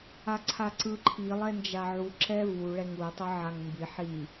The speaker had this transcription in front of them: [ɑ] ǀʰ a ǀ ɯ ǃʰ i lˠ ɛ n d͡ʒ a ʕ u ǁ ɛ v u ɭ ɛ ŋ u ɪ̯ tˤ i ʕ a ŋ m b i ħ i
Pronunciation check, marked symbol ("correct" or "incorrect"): incorrect